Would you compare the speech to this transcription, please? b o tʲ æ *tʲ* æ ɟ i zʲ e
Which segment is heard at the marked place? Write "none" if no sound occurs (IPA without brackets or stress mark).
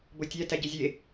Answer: t